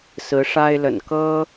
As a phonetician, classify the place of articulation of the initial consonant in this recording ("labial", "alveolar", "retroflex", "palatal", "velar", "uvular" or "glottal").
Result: alveolar